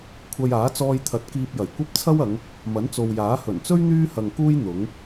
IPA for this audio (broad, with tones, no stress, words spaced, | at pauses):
kʷʰɐ˧jaː˨˥ t͡sɔː˧jt̪ʰɐ˨˥t̚ kiː˧p̚jɐ˨˩jkʷɐ˥p̚ t͡sʰɐ˥wɐ˨˧ŋ | mɐ˨˥nt͡so˨wjaː˨˥ hɵ˨˩nt͡sɵ˥ɥ n̪yː˥hɐ˨ŋkuː˥j n̪ʊ˨˥ŋ